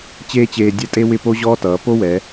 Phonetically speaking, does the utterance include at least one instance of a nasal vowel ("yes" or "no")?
no